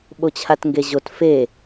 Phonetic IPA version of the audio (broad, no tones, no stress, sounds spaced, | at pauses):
ɓ o t͡ɕʰ a t ŋ ɡ e ʑ o t f e